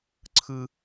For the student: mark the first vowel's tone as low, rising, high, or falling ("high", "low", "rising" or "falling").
high